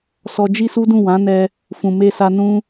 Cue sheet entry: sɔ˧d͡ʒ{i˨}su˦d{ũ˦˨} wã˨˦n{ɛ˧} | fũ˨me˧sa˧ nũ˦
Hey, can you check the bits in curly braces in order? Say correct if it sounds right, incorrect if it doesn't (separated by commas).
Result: incorrect, correct, correct